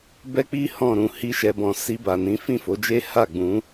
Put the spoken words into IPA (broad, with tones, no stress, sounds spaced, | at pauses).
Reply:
b ɛ˦ k͡p i˦ h ɔ̃˦˨ ɾ ũ˧ h i˦ ʃ ɛ˧ b ɔ̃˧ s i˧ b a˨ n ĩ˨˦ f ĩ˦˨ f o˨˦ d͡ʒ e˦ h a˦˨ ɡ͡b ũ˨˦